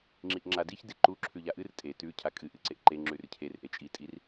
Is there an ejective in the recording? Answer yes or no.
yes